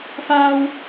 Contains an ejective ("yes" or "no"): no